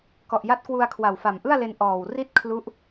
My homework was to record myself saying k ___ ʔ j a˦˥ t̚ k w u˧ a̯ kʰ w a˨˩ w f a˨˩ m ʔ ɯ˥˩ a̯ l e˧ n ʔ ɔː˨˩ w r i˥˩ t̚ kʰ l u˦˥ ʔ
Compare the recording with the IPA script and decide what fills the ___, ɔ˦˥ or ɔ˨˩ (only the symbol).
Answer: ɔ˨˩